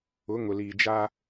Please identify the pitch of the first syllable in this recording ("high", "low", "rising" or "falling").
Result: rising